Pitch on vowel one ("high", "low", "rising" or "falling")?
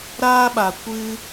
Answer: high